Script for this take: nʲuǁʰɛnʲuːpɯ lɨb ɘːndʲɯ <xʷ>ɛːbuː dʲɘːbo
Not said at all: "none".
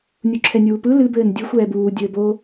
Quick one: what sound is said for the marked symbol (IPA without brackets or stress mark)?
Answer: xʷ